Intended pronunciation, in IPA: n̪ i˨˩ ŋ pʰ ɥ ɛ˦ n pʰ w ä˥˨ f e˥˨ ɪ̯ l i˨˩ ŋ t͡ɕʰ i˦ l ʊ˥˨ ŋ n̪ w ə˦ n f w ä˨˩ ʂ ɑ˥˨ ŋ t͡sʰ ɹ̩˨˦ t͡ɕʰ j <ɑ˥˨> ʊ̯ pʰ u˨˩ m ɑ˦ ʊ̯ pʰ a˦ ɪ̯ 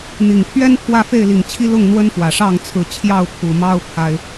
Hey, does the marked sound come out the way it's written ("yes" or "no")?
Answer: yes